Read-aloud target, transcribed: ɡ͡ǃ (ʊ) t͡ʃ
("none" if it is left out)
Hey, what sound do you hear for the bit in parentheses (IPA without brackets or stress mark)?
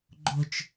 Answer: ʊ